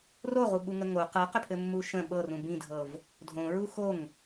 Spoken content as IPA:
r o ʁ u ɓ u ŋ ə ŋ o q ɤ q ʏ pʰ ɘ mː u ʃ ə̃ ɓ ɤ r ũ b ĩ dʱ ɤ v | dʱ õ ɹ u x o ŋ

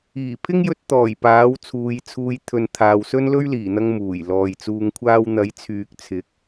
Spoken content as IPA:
iː˨˩ pʰ ɪ˥ ŋ j ɵ˧ t̚ t̪ ɔː˨˩ j p aː˨˥ w t͡sʰ uː˨˧ j t͡sʰ uː˧ j t̪ʰ ɵ˨ n t̪ʰ aː˨ w s ɵ˥ n l ɵ˥ ɥ l iː˨˩ n̪ ɐ˧ ŋ m uː˨˩ j l ɔː˨ j t͡s uː˧ ŋ kʷʰ aː˥ w n̪ ɐ˨˥ j t͡sʰ yː˨ k̚ t͡sʰ ɪ˨˥ k̚

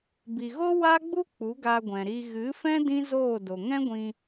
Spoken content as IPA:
b i˨ ɣ o˦ w a˦ ɡ͡b u˦ k͡p u˨˦ ɡ a˧ ɡʷ ɛ̃˨ ɾ i˧ ɣ ɨ˨˦ f ɛ̃˦ d ĩ˦ z oː˦˨ d o˨ ŋ ɛ̃˦ ɡʷ ĩ˧

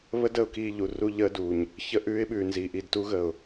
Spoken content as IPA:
β ə˦ d ə˨ ʊ̯ k iː˦˨ ʎ u˨ r u˦ ʎ əː˦ d u˨ ɲ | ç ə˦ ʔ ʉː˦ ɪ̯ ɓ ʉː˨ n z iː˨ ʔ i˨ d t u˦ ɣ ə˨ ʊ̯

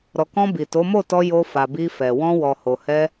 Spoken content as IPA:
ɾ ɔ˨ k ɔ̃˧ b i˨ t o˨˦ m o˦˨ t ɔ˧ j o˧ f a˨ b i˧ f ɛ˨ w ɔ̃˧ w ɔ˨ h o˨ h ɛ˧

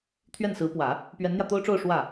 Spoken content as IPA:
t̪ʰ ɥ ɛ˥˩ n s ɹ̩˧˥ p w ä˨˩˦ | p ɥ ɛ˧˥ n n̪ j ä˧ t̪ o˥ ʊ̯ ʈ͡ʂ o˥˧ ʊ̯ ʂ w ä˥˩

